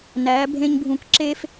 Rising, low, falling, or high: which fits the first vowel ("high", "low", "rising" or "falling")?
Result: rising